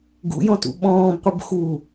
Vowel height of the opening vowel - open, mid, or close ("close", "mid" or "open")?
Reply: close